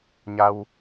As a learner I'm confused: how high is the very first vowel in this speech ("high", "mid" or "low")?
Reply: low